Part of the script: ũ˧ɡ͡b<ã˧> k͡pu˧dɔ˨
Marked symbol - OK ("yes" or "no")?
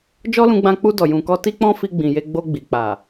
yes